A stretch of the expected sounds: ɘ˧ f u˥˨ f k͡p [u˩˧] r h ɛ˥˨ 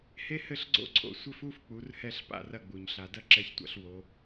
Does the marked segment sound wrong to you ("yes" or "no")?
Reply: no